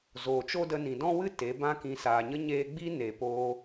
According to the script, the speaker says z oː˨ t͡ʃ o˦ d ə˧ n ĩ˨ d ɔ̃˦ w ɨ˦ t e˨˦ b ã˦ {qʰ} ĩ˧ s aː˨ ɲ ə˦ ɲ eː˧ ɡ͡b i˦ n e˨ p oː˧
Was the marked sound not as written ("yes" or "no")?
yes